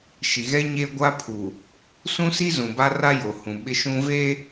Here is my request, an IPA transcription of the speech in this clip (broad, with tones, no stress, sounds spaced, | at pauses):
ʃ i˨ ɣ ɛ˦ ɲ e˦ ɡʷ a˦ pʰ u˨ | s ũ˦ s i˦ z ũ˨ b a˦ r a˦ j o˨ h ũ˨ ɓ ɪ˦ ʃ ũ˦ v eː˦